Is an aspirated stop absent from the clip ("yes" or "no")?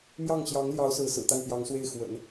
yes